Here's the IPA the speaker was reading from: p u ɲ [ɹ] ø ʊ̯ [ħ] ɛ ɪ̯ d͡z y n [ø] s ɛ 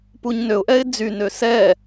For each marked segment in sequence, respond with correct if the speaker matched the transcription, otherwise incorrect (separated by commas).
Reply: incorrect, incorrect, correct